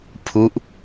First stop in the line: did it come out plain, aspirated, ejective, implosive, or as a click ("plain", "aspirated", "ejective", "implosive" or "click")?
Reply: aspirated